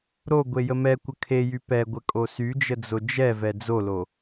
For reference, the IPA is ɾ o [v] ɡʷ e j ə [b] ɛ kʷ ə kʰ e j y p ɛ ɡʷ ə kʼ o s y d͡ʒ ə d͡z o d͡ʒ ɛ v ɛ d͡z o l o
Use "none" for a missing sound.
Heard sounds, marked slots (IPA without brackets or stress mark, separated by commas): none, m